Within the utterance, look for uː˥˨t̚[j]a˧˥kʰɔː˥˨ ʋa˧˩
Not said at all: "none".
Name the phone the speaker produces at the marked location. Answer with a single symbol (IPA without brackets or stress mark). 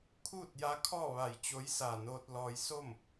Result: j